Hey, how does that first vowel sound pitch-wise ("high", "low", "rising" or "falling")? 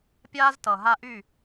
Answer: high